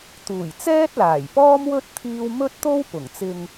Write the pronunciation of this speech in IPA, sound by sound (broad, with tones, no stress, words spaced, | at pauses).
t̪uː˨˩jt͡sɛː˥t̚ laː˨˩jpɔː˥mwɵ˥t̚ t̪ʰiː˥w mɵ˥t̚t̪o˥wpʊ˨˩ŋ t͡sɪ˧ŋ